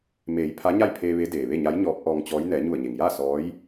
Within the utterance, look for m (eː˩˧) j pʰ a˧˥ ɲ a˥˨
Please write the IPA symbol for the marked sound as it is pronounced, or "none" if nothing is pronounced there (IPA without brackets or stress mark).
eː˩˧